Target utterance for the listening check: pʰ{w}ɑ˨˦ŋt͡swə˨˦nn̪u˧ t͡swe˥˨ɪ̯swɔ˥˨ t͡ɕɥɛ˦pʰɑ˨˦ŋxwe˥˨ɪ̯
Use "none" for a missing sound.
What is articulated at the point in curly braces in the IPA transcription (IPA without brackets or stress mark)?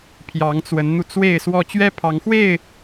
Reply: j